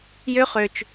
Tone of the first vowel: high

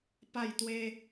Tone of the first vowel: falling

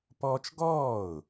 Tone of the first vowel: high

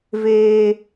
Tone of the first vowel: high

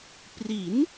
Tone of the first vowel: rising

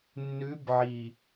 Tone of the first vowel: rising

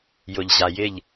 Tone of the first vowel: low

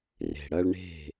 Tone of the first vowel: low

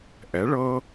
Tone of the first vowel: rising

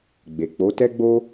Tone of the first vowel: low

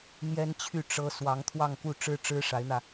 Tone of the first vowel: high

